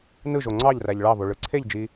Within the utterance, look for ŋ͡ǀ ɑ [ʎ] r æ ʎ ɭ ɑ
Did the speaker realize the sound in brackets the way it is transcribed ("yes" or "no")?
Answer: yes